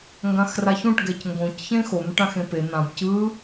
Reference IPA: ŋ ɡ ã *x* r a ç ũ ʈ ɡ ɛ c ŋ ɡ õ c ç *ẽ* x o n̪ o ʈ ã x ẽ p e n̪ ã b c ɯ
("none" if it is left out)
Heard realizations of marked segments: x, ẽ

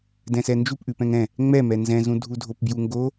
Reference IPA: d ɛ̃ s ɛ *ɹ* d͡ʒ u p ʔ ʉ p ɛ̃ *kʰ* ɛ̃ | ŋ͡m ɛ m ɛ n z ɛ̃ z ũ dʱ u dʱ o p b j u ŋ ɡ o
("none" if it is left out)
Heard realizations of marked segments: n, ŋ

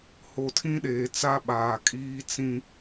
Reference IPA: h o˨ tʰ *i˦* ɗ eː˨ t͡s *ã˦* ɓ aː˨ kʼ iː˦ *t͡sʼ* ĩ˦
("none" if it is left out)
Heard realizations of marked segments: ĩ˦, a˦, t͡s

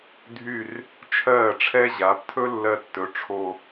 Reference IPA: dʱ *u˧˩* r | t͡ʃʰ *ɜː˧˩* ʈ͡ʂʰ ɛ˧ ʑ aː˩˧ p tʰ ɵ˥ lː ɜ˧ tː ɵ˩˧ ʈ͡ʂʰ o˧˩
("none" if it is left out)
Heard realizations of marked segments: y˧˩, ɜː˧˩

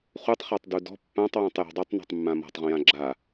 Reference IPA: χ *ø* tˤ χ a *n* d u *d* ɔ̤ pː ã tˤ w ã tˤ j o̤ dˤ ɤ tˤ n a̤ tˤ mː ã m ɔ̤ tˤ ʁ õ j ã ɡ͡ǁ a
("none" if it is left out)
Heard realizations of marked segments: u, tˤ, d

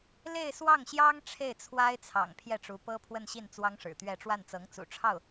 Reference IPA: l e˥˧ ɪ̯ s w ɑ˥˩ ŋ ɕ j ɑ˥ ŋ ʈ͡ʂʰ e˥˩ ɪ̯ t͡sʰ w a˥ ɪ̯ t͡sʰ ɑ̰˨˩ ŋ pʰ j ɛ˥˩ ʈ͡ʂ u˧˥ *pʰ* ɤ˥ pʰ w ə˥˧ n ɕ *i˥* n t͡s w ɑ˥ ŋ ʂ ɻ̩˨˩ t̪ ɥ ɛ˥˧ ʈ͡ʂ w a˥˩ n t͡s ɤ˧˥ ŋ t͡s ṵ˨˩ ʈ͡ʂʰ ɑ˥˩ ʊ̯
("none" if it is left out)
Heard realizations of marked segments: p, i˥˩

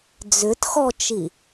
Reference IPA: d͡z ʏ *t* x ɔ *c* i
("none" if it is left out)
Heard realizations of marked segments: t, t͡ʃ

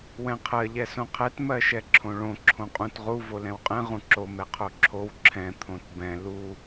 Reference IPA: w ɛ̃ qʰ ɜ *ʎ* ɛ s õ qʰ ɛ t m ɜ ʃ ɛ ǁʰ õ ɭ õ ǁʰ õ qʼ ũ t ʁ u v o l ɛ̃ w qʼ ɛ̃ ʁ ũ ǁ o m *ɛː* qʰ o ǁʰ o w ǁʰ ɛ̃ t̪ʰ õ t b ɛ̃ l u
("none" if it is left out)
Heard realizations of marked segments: ʎ, ɛ

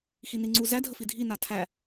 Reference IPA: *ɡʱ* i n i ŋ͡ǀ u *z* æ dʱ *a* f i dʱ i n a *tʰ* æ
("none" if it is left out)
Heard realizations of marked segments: x, z, ə, tʰ

